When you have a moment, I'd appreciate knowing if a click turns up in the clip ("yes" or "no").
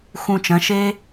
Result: no